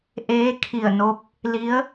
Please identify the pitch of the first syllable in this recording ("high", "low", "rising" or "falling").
rising